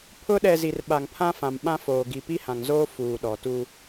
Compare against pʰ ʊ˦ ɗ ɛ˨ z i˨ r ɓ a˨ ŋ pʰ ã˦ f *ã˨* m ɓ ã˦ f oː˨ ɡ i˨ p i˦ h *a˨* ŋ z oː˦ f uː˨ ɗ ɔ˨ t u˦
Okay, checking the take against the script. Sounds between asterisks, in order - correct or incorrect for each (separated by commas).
correct, incorrect